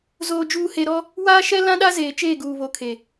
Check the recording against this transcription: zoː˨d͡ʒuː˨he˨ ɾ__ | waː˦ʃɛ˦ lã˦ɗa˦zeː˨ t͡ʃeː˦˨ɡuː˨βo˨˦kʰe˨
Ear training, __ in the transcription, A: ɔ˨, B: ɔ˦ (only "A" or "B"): B